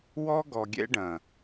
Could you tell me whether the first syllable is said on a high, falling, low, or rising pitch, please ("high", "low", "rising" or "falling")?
high